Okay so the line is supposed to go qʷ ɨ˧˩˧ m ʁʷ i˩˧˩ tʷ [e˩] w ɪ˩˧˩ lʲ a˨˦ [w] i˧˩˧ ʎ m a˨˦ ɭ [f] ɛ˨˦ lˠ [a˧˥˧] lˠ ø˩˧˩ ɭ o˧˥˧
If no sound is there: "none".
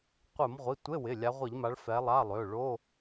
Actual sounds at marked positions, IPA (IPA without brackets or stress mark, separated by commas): e˧˥˧, ʁʷ, f, a˧˥˧